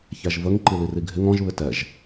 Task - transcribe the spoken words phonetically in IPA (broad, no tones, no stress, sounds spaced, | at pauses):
ç æ ʒ v ə ŋ ǃ i l i r i ɡʱ ɪ ŋ ɔ̃ ʒ β ɪ t ɛ ʒ